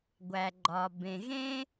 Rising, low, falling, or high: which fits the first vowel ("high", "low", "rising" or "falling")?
low